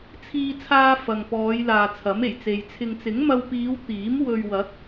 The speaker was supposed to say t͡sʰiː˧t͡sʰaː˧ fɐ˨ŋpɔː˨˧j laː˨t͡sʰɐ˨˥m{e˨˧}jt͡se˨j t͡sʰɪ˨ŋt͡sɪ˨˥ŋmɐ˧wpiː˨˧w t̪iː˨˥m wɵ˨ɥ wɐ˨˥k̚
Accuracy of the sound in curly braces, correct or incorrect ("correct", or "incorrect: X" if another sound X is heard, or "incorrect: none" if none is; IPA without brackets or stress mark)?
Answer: incorrect: e˨˩